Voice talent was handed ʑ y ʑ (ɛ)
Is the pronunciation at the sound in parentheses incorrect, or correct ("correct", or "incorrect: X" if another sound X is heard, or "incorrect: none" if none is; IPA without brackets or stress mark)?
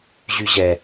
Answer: correct